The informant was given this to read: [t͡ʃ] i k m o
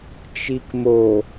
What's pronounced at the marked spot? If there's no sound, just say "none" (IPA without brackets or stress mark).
t͡ʃ